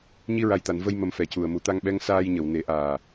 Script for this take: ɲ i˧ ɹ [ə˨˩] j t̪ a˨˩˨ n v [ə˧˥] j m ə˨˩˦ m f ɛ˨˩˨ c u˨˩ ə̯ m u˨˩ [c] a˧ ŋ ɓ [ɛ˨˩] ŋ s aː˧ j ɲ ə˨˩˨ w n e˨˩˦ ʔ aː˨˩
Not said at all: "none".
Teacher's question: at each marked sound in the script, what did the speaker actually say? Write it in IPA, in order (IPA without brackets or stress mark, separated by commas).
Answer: a˨˩, ə˧, t̪, ɛ˧˥